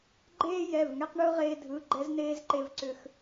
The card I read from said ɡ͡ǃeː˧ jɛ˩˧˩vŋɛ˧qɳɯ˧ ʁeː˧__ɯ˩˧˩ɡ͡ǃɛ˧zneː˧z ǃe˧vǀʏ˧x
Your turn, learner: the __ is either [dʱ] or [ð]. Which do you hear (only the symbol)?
dʱ